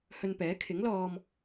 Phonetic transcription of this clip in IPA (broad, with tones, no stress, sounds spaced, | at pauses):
h ɵ˧ n p ɛː˨˥ kʰ ɪ˨˥ ŋ l ɔː˧ m